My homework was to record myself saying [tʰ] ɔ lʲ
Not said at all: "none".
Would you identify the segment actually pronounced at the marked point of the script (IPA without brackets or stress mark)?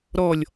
ɾ